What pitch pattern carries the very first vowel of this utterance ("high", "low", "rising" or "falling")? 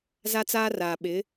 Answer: high